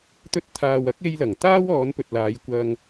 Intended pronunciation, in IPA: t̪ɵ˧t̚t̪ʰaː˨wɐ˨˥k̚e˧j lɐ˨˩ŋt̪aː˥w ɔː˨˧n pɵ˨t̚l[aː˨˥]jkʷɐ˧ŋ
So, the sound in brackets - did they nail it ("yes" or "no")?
no